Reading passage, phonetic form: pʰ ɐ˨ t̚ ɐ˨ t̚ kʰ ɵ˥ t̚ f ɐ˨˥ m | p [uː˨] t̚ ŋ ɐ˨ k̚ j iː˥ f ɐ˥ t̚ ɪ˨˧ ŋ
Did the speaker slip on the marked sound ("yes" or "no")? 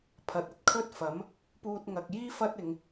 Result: yes